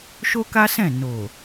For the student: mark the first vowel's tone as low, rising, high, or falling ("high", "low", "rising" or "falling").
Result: high